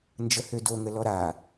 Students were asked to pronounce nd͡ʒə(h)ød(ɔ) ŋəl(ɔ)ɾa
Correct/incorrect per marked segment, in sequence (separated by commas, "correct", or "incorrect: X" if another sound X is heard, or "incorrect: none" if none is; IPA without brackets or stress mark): correct, incorrect: o, correct